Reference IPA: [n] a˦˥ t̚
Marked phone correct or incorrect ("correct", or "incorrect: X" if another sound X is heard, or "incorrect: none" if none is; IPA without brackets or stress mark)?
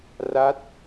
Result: incorrect: r